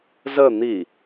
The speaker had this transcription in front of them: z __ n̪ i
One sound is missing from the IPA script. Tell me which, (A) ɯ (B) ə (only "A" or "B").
B